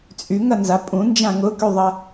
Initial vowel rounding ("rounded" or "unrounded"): rounded